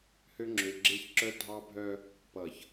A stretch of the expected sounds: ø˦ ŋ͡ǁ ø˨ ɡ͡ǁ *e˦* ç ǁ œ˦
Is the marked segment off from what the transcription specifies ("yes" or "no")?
no